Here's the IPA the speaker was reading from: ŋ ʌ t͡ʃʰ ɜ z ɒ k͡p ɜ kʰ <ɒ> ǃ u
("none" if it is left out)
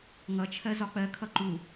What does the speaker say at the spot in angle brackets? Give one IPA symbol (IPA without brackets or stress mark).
ʌ